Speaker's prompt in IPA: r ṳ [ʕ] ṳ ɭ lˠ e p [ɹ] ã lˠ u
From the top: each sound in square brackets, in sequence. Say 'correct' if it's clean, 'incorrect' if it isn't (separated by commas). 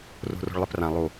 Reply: incorrect, incorrect